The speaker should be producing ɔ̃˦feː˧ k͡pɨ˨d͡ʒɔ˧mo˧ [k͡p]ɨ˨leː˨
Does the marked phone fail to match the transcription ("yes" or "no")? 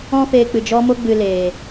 yes